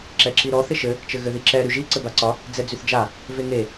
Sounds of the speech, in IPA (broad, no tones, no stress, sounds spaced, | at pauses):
ǁ ɛ ǁ i ɾ ɔ θ ɪ ʃ ɘ | t͡ʃ ɘ ɣ ɘ ð i ǁ ɛ ɾ y ʒ i ǀ ɘ b a ǀ ɒ | d͡z ɛ d͡z y θ d͡ʒ a | v e ŋ e